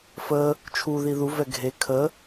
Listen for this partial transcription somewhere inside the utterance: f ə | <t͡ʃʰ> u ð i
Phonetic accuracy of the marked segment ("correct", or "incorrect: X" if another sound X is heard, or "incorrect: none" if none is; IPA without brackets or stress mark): correct